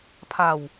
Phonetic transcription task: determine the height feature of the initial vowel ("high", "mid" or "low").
low